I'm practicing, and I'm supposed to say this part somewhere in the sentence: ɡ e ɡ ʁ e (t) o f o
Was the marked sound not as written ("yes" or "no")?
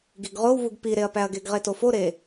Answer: no